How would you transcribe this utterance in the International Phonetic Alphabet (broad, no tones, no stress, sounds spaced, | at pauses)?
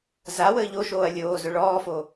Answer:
z a w əː ʎ o ʃ oː ɐ̯ lʲ oː z ʊ ɭ ɔː f o